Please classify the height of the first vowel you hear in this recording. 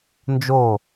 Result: mid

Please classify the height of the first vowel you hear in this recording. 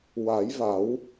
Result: low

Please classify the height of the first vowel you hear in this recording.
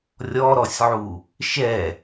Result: mid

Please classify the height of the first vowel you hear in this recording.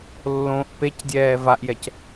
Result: mid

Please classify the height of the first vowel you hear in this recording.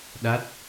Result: low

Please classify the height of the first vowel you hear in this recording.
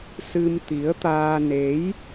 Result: high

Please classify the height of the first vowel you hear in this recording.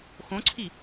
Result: mid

